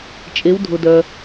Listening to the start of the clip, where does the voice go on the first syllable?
rising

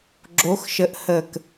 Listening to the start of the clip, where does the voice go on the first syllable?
rising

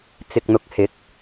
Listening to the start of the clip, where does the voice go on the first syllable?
low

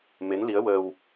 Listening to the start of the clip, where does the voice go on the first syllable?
rising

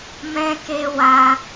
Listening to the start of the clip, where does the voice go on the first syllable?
high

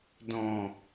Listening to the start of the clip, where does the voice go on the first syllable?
low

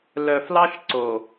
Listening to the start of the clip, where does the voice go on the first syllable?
low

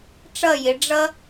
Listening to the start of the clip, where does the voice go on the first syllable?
falling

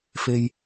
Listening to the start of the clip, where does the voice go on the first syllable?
low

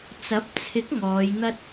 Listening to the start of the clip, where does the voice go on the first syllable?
rising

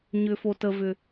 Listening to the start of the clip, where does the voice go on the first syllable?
low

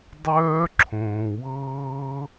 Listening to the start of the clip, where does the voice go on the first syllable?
high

